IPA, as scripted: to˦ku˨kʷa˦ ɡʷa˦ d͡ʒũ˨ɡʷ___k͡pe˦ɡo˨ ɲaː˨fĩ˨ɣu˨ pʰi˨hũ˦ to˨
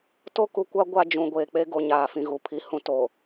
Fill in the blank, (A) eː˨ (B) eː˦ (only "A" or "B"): A